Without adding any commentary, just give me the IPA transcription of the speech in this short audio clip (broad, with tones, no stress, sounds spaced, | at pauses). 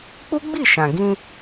k͡p u˦ ɡ͡b i˦˨ ʃ ã˨ ɡ ĩ˧